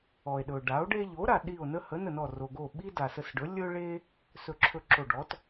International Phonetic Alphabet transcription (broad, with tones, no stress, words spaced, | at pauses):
ɔ˩e̯ɗɵ˩ ɖa˩˥o̯ɖe˦ ʎo˩˥ ɾa˩ɗi˧˩o̯nə˦ hə˩˥nə˧˩nɔ˧˩ ro˩ɡo˧˩ ɓi˦ da˩sə˧˩sɖɵ˩˥ lʲɵ˦ɭe˦ | sɵ˧˩ ǁʰɵ˧˩ ǁo˧˩ɖɔ˩˥t